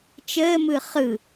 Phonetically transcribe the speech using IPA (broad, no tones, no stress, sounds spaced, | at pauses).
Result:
t͡ʃ əː m ɯ χ ɯ